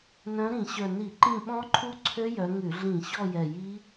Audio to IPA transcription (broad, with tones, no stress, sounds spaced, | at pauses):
n œ̃˨˦ ɾ ĩ˧˩˧ ɕ œ˨˩ n i˧˩˧ ǃ ĩ˦˨ ɓ ɔ̃˦˥ ǃʰ u˦˥ ǀʰ ø˦˥ j œ˨˦ ŋ ʉ˧˩˧ ɮ ĩ˧˩˧ ɕ ɔ˦˨ j ɛ˨˩ j i˦˥